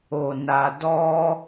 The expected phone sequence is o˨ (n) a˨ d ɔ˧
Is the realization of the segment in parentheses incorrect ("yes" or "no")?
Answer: no